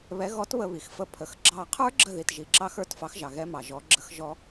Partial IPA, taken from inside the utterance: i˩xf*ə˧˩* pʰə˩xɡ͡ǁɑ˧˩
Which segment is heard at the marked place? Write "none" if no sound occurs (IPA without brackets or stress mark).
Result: ə˧˩